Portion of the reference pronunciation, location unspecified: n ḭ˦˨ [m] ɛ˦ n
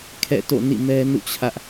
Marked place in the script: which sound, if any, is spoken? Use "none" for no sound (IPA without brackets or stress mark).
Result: m